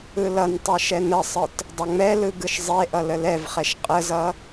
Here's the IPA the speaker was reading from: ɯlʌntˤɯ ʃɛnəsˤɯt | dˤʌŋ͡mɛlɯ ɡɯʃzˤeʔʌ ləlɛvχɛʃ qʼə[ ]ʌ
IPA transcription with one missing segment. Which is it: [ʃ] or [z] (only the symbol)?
z